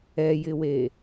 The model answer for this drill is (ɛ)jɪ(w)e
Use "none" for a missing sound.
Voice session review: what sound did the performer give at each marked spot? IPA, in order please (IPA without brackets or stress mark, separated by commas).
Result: ɛ, w